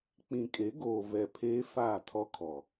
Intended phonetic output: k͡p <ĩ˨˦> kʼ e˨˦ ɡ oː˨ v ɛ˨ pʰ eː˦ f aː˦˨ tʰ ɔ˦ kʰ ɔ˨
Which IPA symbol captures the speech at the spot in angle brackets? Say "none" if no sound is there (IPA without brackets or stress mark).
ĩ˨